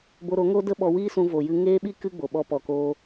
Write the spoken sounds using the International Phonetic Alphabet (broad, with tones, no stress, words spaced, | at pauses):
bo˧ɾo˨˦ŋo˦ də˦ɓɔ˧wiː˦sũ˧ vo˨jɨ˧ ŋeː˦ɓi˦ kɨ˦ɡ͡bo˨ ɓɔ˧pɔ˨koː˧